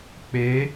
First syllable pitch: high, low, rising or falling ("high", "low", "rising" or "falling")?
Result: rising